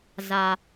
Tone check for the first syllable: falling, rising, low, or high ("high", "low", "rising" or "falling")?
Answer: low